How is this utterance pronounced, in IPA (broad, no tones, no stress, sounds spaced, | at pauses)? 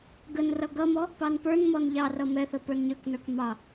ɡ ə n r ʌ ɡ ʌ m ɔ | p ɑ n p ə˞ n m ɔ n ʎ ɑ r ʌ m ɛ θ ə p ə˞ n ɲ ə˞ k n ə˞ k m ɑ